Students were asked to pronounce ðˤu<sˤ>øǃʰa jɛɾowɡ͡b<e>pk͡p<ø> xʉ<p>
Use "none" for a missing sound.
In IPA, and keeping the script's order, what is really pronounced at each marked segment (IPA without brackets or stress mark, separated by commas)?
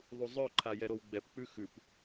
zˤ, ɛ, ʉ, p